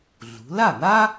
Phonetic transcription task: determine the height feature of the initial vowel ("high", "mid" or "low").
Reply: high